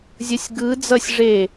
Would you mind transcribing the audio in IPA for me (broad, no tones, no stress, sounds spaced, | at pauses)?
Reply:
zʲ ʌ sʲ ɡ ɯ d͡z ʌ sʲ ʐ e